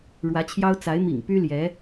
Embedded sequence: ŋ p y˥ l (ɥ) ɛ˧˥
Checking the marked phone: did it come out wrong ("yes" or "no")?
yes